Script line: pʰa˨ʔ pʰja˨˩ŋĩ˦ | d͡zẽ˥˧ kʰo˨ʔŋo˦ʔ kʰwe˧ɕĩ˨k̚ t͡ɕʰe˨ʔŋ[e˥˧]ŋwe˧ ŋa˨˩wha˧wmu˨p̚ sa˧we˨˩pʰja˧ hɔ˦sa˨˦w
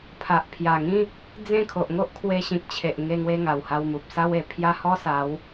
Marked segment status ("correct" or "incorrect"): incorrect